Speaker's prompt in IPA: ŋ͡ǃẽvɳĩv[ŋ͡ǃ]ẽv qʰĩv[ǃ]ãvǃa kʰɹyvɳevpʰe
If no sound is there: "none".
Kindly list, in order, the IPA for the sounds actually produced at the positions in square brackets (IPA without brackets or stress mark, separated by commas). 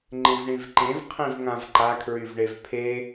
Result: ǃ, ŋ